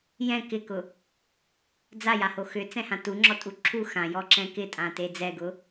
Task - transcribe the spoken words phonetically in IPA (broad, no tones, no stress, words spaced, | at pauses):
jɛ̃ kɪkʊ | d͡zajaho xʏt͡sɛ̃hã tuŋ͡ǁɔtʼu ǁʰu xãjɔǁɛ̃ kɪtʼãte d͡zɛɡʊ